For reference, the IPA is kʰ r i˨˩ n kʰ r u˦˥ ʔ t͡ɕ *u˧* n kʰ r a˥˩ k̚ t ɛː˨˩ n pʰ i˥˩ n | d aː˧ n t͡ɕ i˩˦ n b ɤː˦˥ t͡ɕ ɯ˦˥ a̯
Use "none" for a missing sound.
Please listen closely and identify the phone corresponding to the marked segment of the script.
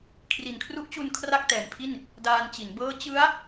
u˧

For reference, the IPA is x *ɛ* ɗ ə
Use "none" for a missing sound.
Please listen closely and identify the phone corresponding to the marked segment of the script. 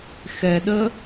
ɛ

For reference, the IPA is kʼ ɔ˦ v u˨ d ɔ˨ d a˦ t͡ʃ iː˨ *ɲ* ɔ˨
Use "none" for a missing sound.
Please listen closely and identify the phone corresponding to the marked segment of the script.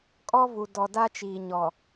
ɲ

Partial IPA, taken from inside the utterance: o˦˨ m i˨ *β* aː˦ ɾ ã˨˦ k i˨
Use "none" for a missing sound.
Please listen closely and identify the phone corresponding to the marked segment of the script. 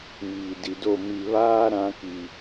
β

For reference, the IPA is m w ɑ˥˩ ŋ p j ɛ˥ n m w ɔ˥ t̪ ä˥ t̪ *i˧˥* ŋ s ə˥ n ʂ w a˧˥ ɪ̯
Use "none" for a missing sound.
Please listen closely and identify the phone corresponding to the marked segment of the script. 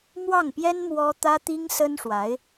i˥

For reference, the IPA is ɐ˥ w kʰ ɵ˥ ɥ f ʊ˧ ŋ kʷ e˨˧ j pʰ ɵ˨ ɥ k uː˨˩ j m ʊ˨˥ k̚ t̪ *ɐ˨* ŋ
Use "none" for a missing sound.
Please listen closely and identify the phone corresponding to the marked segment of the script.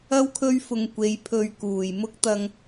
ɐ˨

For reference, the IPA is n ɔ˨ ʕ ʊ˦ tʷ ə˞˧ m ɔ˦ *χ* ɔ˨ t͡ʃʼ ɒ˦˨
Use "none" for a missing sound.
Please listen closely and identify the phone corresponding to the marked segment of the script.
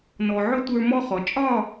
χ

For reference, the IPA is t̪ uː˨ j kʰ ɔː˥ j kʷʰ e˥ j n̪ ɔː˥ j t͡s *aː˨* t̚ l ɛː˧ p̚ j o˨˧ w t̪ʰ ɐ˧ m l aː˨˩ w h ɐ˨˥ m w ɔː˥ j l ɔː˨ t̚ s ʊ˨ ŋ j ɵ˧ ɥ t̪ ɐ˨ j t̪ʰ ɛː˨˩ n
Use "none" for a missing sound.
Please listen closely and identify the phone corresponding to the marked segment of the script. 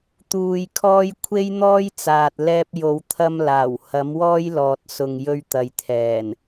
aː˨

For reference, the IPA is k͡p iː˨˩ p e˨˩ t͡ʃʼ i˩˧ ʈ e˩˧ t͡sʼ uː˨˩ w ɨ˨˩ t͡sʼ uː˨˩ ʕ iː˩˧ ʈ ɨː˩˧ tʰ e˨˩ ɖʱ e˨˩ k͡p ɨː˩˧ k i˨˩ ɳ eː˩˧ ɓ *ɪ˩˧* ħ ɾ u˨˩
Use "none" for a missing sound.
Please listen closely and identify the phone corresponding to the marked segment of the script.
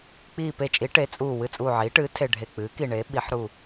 i˩˧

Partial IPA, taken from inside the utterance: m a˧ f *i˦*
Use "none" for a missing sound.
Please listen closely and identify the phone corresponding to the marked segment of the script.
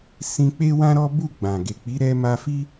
i˦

